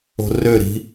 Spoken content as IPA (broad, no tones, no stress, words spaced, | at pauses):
o̤røɾi̤